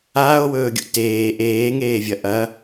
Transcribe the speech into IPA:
aː o̯ w ɵː ɡʲ ṵ t eː ʔ eː ŋ eː vʲ ɐ ʔ ɐ

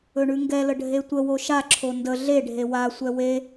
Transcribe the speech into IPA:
ɵ ɳ ʉ ŋ ɡ ɛ l ə ɖʱ e tʷ ə w o ʃ a ǁʰ o n d ə ɮ e ɖʱ e w a sʷ ɛ w e

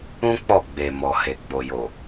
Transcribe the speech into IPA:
ũ˦ k͡p ɔ˦˨ ɡ͡b e˨ m ɔ˨ h e˨ ɡ͡b o˨ j o˨

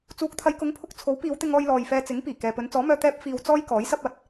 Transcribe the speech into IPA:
t͡s uː˨˥ k̚ t̪ʰ ɐ˨˧ j k ʊ˨˥ ŋ pʰ ʊ˧ k̚ t͡sʰ o˨˥ w p iː˨˧ w t̪ ɪ˧ ŋ ɔː˧ j l ɔː˨ j f ɛː˧ t͡s ɪ˨˥ ŋ p iː˨˩ k ɛː˨ p ɵ˨˧ n t͡s ɔː˨˥ m œː˧ t̪ ɛː˧ p̚ f iː˨ w t͡s ɔː˧ j k ɔː˨˥ j s ɐ˥ p̚ ɐ˨˥ t̚

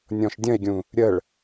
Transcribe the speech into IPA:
nʲ ɔ̃ ʃ dʲ ə̃ e̯ ɡʲ ũ | ɾʲ ə ɭ

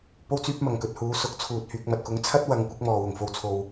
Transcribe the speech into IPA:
p o˧ w t͡s yː˧ p̚ m ɐ˨˩ ŋ k ɵ˨ t̚ h uː˨˧ s ʊ˨˥ k̚ t͡sʰ uː˨ t̚ h yː˨ k̚ m ɐ˨ t̚ k ʊ˨˥ ŋ t͡sʰ ɐ˥ t̚ w ɐ˨˧ ŋ kʷ ɪ˨˥ k̚ m ɔː˨ w ʊ˨˩ ŋ f o˨ w t͡sʰ o˨ w

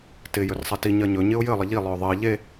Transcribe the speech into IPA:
t ɪ j ɵ r sˤ e t i ɲ ɜ ɲ ɵ ɲ ɪ ʊ̯ j ɘ lˠ ə ʎ i lˠ ɵ ʊ̯ ðˤ ɜ ʎ e

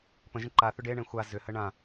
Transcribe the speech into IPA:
p ə̃ ʒ ə̃ ǃ a θ ʏ ɖ e ɳ ẽ xʷ a z ʏ h ə ɳ ã

